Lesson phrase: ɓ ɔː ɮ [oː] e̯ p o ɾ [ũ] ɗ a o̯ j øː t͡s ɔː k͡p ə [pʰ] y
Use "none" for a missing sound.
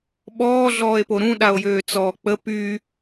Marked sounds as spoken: ɔː, ũ, p

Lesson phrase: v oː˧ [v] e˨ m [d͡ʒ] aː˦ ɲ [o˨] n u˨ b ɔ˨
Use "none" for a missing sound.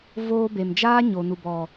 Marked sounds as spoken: b, d͡ʒ, o˨

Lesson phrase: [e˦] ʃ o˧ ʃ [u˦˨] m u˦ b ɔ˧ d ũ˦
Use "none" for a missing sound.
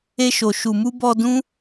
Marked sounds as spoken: e˦, u˧

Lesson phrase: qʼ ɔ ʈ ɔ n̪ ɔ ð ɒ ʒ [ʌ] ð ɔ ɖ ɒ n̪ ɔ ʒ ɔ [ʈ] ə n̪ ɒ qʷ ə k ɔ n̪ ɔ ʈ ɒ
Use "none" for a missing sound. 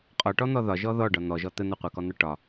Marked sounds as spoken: ɔ, t̪

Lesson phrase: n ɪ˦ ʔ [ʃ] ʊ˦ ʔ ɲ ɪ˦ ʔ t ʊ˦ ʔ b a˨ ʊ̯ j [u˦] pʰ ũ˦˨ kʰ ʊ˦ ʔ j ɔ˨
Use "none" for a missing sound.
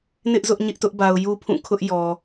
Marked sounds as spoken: z, u˦

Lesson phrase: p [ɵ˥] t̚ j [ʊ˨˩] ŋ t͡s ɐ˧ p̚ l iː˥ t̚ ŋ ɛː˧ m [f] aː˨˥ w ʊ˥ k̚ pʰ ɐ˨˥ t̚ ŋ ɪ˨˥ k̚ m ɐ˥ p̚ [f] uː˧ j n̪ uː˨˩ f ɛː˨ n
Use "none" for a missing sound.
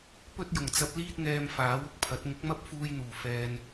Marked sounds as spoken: ɵ˥, ʊ˨˩, f, f

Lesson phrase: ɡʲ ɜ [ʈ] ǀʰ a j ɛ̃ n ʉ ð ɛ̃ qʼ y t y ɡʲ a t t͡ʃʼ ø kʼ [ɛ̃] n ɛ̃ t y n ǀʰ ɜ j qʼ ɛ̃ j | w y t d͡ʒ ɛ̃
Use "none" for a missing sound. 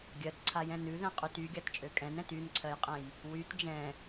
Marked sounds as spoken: t, ɛ̃

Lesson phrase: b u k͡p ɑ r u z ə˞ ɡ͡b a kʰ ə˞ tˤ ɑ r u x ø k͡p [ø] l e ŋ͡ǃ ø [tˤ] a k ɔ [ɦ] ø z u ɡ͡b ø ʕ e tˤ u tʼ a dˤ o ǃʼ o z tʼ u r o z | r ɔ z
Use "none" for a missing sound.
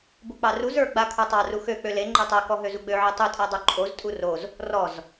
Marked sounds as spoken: ø, tˤ, ɦ

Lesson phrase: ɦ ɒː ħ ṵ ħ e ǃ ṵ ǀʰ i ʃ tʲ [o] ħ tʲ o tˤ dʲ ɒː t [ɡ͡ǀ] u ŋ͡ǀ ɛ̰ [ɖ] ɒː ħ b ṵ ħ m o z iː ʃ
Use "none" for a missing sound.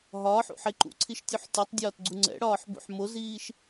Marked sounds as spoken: u, ɡ͡ǀ, ɽ

